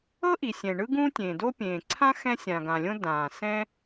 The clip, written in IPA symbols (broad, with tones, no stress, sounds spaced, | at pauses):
ɤ˥ ʔ i˩ sʲ ɛ̃˩ ɳ ɯ˥ ɡ ũː˥ tʲ ẽː˩ d o˥ pʲ ẽː˩ ǀʰ ã˥ x ɛ̃˥ sʲ ã˩ ɡ ã˩ lʲ õ˥ d ãː˩ s ɛ̃˥